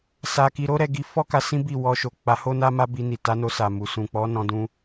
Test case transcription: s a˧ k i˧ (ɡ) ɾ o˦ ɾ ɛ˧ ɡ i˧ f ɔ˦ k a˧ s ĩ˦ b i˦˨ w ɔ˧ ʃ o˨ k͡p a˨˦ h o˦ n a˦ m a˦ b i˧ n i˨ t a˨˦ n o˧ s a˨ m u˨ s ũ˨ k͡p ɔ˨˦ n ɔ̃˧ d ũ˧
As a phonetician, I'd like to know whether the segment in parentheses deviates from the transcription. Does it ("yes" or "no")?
yes